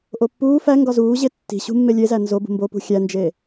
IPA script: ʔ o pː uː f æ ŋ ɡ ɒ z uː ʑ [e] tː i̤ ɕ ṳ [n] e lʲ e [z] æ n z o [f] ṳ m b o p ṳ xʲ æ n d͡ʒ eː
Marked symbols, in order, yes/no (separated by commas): yes, no, yes, no